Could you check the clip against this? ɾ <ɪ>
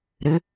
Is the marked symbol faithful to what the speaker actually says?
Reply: yes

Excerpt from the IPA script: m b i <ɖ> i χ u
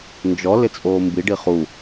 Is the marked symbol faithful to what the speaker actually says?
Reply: yes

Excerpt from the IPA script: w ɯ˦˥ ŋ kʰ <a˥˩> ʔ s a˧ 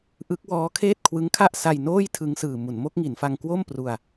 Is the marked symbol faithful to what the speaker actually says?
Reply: yes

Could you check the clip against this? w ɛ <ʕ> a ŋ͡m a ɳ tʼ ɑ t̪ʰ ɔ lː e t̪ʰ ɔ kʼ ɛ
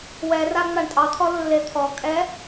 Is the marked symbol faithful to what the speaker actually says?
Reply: no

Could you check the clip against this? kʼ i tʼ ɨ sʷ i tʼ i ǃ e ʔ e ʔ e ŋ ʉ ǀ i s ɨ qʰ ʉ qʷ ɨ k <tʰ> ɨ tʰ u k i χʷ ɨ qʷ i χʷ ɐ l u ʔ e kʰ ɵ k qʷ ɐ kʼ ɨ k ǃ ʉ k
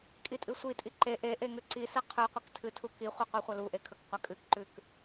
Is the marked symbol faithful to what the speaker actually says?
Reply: yes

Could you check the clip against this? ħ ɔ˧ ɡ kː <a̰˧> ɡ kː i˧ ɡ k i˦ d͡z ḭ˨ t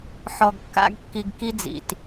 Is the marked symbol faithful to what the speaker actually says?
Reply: no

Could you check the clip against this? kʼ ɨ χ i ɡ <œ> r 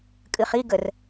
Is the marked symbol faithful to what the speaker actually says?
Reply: no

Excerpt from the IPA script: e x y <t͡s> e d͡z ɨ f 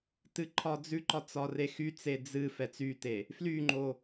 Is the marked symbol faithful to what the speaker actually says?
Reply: yes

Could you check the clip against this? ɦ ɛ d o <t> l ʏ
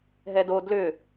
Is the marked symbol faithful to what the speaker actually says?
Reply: no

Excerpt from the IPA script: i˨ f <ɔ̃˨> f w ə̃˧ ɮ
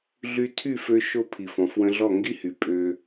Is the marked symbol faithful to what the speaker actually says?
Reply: yes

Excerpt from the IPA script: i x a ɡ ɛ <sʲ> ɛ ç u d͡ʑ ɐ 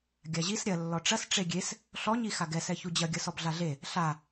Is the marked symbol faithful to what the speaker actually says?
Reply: no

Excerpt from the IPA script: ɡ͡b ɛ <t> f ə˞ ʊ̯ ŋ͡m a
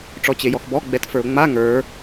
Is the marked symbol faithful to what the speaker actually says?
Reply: yes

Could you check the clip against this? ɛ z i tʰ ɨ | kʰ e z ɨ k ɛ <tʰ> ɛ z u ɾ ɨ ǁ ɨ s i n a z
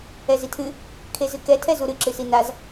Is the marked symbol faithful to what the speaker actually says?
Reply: yes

